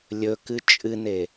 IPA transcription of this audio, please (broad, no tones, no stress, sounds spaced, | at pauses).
lʲ ɵ k ɨ t͡ʃʼ ɨ n e